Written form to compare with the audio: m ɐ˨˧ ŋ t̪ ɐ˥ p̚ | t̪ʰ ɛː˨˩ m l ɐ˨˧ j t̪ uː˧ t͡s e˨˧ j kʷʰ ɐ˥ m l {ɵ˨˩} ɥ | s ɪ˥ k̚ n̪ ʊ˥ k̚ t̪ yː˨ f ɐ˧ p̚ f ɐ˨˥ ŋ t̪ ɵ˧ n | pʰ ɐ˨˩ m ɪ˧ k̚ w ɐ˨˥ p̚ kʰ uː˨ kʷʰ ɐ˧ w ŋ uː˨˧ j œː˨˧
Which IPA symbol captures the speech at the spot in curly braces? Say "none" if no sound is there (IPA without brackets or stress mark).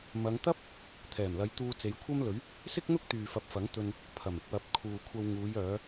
ɵ˨˥